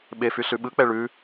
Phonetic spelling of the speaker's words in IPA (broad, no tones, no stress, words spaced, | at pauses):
ɓefy ɬʉɓɯk͡pɛ ɭʉ